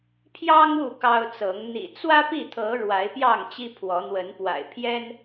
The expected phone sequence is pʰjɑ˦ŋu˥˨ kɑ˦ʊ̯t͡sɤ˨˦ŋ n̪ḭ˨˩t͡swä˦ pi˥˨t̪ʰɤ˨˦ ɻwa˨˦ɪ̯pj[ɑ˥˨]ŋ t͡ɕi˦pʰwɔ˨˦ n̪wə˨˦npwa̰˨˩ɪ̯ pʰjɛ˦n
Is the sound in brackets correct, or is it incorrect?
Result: correct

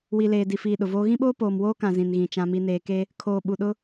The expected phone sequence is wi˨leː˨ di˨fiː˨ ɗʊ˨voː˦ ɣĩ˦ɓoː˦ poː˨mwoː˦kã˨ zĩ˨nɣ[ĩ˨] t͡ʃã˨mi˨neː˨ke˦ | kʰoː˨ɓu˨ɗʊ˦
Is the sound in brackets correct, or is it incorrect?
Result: correct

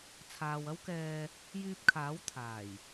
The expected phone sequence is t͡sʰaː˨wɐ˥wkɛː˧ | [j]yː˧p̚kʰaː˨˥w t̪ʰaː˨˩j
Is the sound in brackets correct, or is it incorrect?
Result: correct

